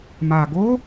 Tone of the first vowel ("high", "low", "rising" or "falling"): low